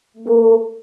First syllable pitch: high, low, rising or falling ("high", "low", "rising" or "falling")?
high